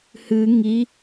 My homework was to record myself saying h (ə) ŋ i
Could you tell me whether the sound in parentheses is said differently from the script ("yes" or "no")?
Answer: yes